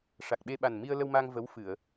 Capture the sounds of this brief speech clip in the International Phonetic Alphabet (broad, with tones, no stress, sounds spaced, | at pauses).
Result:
ʂ a˨˩ k̚ ɓ e˧ ɓ a˨˩ n m i˧ ə̯ l ə˧ w m a˧ ŋ v ə˧˥ w f ɨ˨˩˨ ə̯